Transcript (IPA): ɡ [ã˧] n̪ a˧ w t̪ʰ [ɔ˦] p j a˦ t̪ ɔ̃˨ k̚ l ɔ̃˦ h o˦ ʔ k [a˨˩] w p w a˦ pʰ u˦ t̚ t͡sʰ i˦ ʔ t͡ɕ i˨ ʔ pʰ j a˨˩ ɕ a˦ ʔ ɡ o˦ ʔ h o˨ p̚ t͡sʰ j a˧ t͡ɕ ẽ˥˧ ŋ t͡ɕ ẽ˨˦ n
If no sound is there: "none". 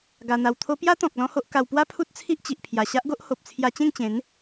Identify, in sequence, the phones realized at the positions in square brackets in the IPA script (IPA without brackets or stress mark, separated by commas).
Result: a˧, o˦, a˧